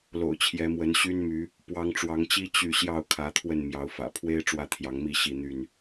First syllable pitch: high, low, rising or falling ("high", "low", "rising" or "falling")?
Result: low